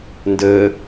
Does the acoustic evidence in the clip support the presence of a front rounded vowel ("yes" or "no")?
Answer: no